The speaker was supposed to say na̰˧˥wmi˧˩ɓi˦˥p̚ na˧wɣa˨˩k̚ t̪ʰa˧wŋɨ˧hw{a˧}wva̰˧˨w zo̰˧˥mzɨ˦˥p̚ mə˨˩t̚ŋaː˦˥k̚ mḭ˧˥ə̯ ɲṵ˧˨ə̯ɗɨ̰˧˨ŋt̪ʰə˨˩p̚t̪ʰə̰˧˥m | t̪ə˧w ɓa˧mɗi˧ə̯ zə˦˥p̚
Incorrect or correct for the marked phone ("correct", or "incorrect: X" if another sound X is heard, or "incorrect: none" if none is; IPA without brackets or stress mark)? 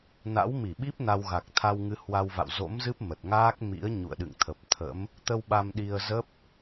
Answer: correct